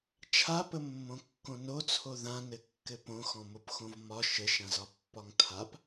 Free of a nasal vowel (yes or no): no